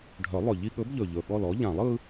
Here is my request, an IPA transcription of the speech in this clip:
ɖʱ œ˨˩˦ lˠ ɵ˨˩ ʎ i˦ ɠ ɵ˨˥ b ʎ ɵ˨˩ ʎ ɵ˨˩ ɠ ɔ˦˨ l ɔ˨˥ ʎ ã˨˩˦ lˠ ɯ˦

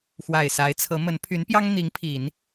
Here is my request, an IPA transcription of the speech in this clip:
x w a˨˩ ɪ̯ s a˧˥ ɪ̯ t͡sʰ ɤ˧˥ m ə˧˥ n pʰ y˧˥ n p j ɑ˥ ŋ n̪ i˧˥ ŋ pʰ i˨˩˦ n

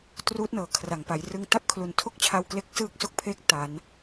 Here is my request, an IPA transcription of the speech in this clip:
t r uː˦˥ t̚ n ɤː˩˦ kʰ r a˩˦ ŋ p a˩˦ j r ɯ˧ ŋ t a˥˩ p̚ kʰ l u˨˩ n tʰ o˥˩ k̚ t͡ɕʰ a˧ w k l e˦˥ k̚ s ɯː˥˩ k̚ s o˥˩ k̚ pʰ eː˦˥ k̚ t a˩˦ n

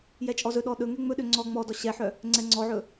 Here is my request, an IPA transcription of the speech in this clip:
j ɛ t͡ʃʼ ɔ z ɵ ɗ ɔ ɗ ɵ ŋ ɛ ŋ͡m ɵ ɗ ø ŋ͡ǀ ɔ ŋ͡m ɔ d ɔ ɕ ɛ ħ œ | ŋ͡ǀ ɛ ŋ͡ǀ ɔ ʕ ɵ

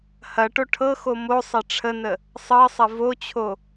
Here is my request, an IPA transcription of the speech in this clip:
h ɐ ʈ o ʈʰ ɤ x o m o sˤ ɐ ʈ͡ʂʰ ə n ə | sˤ ɤ sˤ ɐ v o t͡ɕʰ o

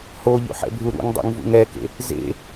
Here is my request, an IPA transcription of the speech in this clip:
h o ʎ ṵ ħ ɛ̰ bʱ u ɾ ṵ ŋ dˤ ṵ ŋ v ṵ ŋ ɛ k ḛ | z ḛ

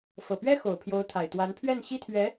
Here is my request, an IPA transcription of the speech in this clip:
f ɤ˨˩ p ɥ ɛ˥ x o˨˩ ʊ̯ pʰ j o˧˥ ʊ̯ t̪ʰ a˨˩ ɪ̯ t̪ w a˧˥ n pʰ ɥ ɛ˥˩ n ɕ i˥ t̪ʰ ɥ ɛ˧˥

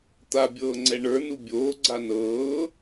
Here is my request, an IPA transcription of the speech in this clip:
t̪ a bʲ ɤː ŋ͡ǀ ɛ ɳ ə˞ n u bʲ oː ɡ͡ǀ a n ɤː

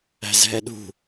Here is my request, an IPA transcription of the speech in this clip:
æ̤ z ɦ ɛ ɗ ṳ

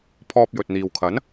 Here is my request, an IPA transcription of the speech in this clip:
pʰ ɔː˧ p̚ j ɵ˨ t̚ n̪ iː˨ w kʰ ɐ˨˥ n

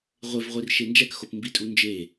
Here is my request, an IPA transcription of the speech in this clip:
ʁʷ e v ʁʷ i r ʃ e n d͡ʒ æ k x o p m b i tʼ u n d͡ʒ e

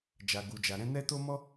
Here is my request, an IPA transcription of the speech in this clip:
d͡ʒ a˨ ɡ u˨ d͡ʒ a˨ ɾ ɛ̃˧ n ɛ˦ t o˦ m ɔ˦

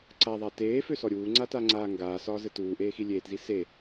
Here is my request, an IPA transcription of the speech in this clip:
ǀ a ðˤ a t eː f ø s ɔ ɾʲ uː ŋ͡ǀ a t a ŋ͡ǀ aː ŋ ɡ aː s ɒː z ɘ t uː ʔ eː x i lʲ eː t z i s e

